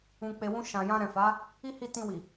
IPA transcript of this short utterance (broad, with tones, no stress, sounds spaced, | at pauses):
ũ˨ k͡p e˨ w ũ˧ ʃ ã˨ j ã˧ ɾ ɛ̃˨ f a˨˦ | i˦ h i˦˨ t ĩ˧ w i˨